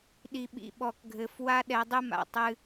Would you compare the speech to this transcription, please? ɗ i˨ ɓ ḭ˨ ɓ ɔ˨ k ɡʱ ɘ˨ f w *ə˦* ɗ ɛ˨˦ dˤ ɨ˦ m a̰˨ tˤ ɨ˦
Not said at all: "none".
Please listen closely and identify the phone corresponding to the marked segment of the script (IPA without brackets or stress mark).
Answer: a˦